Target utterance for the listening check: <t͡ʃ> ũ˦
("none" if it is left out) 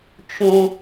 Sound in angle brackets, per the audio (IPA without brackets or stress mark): t͡ʃ